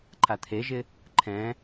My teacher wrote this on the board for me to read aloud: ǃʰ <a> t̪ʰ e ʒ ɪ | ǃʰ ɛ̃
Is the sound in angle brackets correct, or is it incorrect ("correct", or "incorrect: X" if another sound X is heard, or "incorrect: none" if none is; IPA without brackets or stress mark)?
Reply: correct